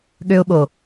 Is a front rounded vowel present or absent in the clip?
present